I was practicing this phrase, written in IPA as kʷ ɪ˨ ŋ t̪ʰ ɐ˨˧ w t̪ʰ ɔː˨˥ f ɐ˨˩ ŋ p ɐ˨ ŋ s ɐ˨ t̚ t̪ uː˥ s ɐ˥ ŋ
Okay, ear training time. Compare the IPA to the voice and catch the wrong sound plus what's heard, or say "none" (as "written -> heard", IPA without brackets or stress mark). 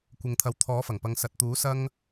uː˥ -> uː˨˥